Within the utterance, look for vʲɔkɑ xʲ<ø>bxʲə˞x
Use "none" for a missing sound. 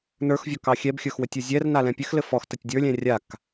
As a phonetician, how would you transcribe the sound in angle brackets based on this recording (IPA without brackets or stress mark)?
ɛ